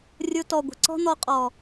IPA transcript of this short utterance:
rʲo˧tɔ˨ɡʷə̤˨ ǀɔ̤˦n̪ɔ˧qʼɔ˨

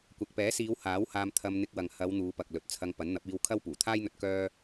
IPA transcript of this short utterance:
kʷɐ˨k̚pɛː˨˥siː˨˧w haː˨˥w haː˧m t̪ʰɐ˧mn̪ɪ˧k̚wɐ˨ŋ hɐ˨˧w n̪uː˨˧pɐ˨k̚lɵ˨t̚t͡sʰɐ˧ŋ pɐ˨˥nn̪ɐ˨˥p̚iː˧wkʰɐ˥w puː˨˩t̪ʰaː˥jn̪ɵ˧t̚ kœː˥

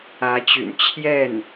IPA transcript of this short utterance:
ä˧˥t͡ɕy̰˨˩n t͡ɕʰjɛ˥˩n

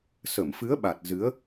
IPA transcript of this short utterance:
sə˧˩mfɨ˨˦ə̯ɓa˨˩t̚ zɨ˨˦ə̯

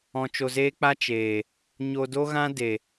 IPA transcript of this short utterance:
ɔ̃˧t͡ʃo˧zeː˦k͡pa˦ t͡ʃeː˨ | ɲo˧do˦ɣã˦ de˨

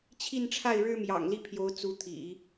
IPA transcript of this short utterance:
t͡ɕʰi˥˧nʈ͡ʂʰa˥˩ɪ̯ ɻɻ̩˥mjɑ̰˨˩ŋli˥˩pʰjo˧˥ʊ̯ t͡su˧˥t̪ʰḭ˨˩˦

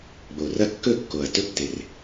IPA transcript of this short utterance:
ɡ͡bo˨˩rɐ˥˧kːɵ˥˧kːo˨˩ɐ̯ tɵ˥˧pte˨˩r

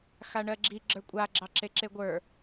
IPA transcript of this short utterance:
xaɳɜɡ͡ǁi ɡ͡ǁə˞kʷʼa ɡ͡ǁɑǁeǁeɡʷə˞

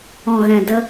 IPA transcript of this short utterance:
ɔ̃˧ɣɛ̃˧də˦

